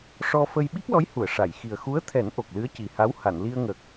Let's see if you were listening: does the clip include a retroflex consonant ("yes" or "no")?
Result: yes